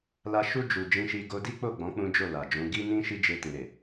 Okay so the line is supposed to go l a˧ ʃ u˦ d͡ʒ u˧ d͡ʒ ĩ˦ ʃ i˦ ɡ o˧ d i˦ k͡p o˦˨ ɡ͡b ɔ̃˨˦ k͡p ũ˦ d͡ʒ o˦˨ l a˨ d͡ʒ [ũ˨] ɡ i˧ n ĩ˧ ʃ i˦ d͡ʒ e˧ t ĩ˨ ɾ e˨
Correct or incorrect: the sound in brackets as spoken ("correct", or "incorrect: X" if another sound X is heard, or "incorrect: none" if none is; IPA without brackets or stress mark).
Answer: incorrect: ũ˨˦